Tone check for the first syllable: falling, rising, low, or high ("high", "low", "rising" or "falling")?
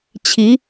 rising